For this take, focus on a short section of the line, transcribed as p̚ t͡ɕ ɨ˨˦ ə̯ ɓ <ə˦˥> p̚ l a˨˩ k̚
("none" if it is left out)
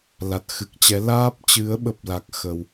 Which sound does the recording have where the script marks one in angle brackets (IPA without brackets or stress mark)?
ə˦˥